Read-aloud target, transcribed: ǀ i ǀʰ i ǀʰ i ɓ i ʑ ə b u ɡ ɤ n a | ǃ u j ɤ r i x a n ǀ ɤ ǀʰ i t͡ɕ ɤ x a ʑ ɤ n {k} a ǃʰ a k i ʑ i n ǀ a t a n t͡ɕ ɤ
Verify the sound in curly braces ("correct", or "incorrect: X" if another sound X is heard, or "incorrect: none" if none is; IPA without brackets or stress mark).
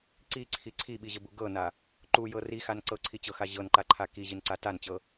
incorrect: ǃ